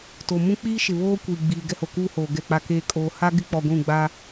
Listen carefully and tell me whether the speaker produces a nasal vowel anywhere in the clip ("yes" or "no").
yes